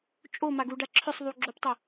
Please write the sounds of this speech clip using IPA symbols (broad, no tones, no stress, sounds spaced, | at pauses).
t͡ʃʼ o m a ɡ u ɖ a ǁʰ ʏ sˤ ðˤ u ɡ͡ǁ o p tˤ ʏ